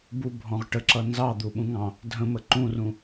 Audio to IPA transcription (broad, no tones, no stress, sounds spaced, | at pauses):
b u bʱ ɔ̃ ʁ ʈ ə ǁ ʌ n z ɑ d̪ u ɓ ũ ŋ ɑ̃ | dʱ ə̃ m ə ǃ ũ r ũ